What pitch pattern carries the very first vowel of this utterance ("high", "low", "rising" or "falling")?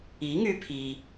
rising